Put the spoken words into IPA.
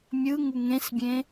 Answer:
mʲ ɯ ŋ u ŋ ẽ s bʲ ẽ

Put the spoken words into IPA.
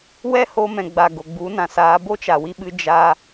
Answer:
w ɛ˦ h o˧ m ɛ̃˨ ɡ͡b a˨ ɡ o˨ ɡ͡b u˨˦ n ã˨ s aː˧ b o˦ t͡ʃ a˨ w i˧ ɓ ɨ˧ d͡ʒ a˧

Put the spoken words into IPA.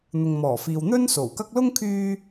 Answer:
n̪ ʊ˨ ŋ m ɔː˨˩ f iː˨ w n̪ ɵ˥ n s o˨˩ w k ɐ˥ k̚ l ʊ˥ ŋ kʰ yː˧

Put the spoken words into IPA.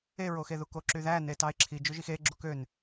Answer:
e ɹ o x e ð u k o ǁ y ð æ n e t ɑ ɪ̯ ǁʰ i d͡ʒ ø ʒ i x e ɡ͡ǁ u k ø n

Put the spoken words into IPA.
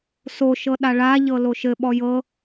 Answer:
s o ʃ ɤ ɗ a ɭ a ʎ ɤ l o ʃ ɘ ɓ ɔ j ɤ

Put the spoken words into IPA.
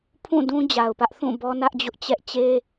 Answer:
pʰ ũ˦˨ d ũ˦ d͡ʑ a˨ ʊ̯ p ä˦ ʔ θ ũ˦˨ b ɔ˦ n ä˦ ʔ d͡ʑ ʊ˦ ʔ t͡ɕ ɛ˦ ʔ t͡ɕ e˦

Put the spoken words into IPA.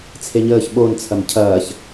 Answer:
t͡sʰ e ɲ əː ç ɓ o n t͡sʰ ɐ m cʰ ɐː ç

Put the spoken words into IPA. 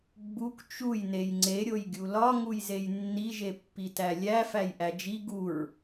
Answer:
ɡ͡b u k t͡ʃ u j n e j ŋ͡ǀ e ɾʲ o j ɡʲ u l ɒ ŋ u j z e j nː i ʒ e pː i t æ lʲ æ f æ j ʔ æ d͡ʒ i ɡ u ɹ

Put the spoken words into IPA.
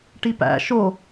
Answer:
ʈ i p æ̰ ʃ o

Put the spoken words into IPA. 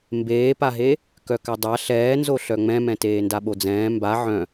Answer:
m b eː p a ɦ e | k œ k a dˤ a ɬ ɛː n z o ɬ œ ŋ͡m ɛ̃ m ɛ̃ t eː n d a ɓ o d͡z ɛ̃ː m b a ʕ œ̃

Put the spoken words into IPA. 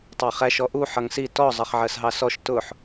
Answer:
tˤ ɑ χ æ ʃ ɔ ʔ u ħ ʌ ŋ s i t ɔ zˤ ʌ χ ʕ ɜ s ɦ ɑ s ɔ ʃ t ʊ ħ

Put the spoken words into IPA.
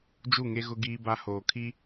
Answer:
d͡ʒ u˦˨ ŋ e˦ ɣ ʊ˦ ɡ iː˦ b a˦ h oː˨ kʰ i˦

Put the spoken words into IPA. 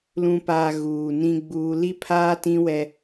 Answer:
l ũ˨ p aː˨ ɣ uː˨ n ĩ˦ ɡ͡b uː˦ l i˦ pʰ aː˦ t ĩ˦ w ɛ˦

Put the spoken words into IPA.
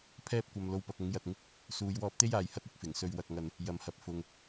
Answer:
pʰ ɛː˥ p̚ kʷ ɐ˨ m l o˧ w p ɐ˨ k̚ ʊ˨˥ ŋ j ɐ˧ t̚ ŋ ɪ˥ k̚ | s uː˨˧ j w ɔː˧ p̚ t̪ e˥ j aː˧ j h ɐ˥ t̚ ɪ˨˥ k̚ f ɪ˨˩ ŋ s ɵ˧ ɥ w ɐ˧ k̚ ŋ ɐ˧ n | j ɐ˨ m h ɐ˨ p̚ f ʊ˨ ŋ

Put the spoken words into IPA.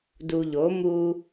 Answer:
d u˨ ʎ o˨˦ m u˦

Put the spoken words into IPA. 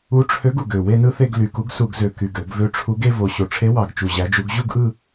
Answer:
u˨˥ ʈ͡ʂʰ ø˨˥ ɡ u˨˩ ɡ ø˨˩ w e˥˧ n ɯ˥˧ θ e˥˧ ɡ l y˨˩ k u˨˥ ɡ s u˧˩˧ ɡ z ø˨˩ k y˨˩ ɡ ø˧˩˧ ɡ v ø˨˥ ʈ͡ʂʰ u˨˥ ɡ e˥˧ v o˨˩ ɕ o˨˩ ʈ͡ʂʰ e˨˥ w ɑ˨˩ ɡ t͡ʃ u˨˩ ʑ æ˨˥ d͡ʒ u˨˥ ɡ ʑ u˥˧ ɡ ʔ ɯ˥˧

